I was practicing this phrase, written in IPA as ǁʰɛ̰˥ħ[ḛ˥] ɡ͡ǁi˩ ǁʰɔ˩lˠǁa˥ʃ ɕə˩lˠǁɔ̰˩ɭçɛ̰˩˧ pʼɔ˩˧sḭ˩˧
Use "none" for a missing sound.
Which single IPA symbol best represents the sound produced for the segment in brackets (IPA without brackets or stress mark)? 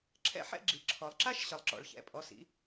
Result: ɛ̰˥